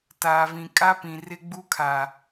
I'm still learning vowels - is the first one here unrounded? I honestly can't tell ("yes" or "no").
yes